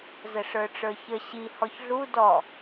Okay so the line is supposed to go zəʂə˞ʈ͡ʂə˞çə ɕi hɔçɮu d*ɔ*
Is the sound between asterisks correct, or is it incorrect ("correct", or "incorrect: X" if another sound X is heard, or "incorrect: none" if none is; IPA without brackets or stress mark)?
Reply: correct